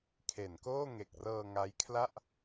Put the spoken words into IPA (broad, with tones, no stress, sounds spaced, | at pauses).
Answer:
kʰ e˩˦ n k oː˥˩ ŋ e˨˩ k̚ r ɤː˧ ŋ a˦˥ j kʰ l a˥˩ ʔ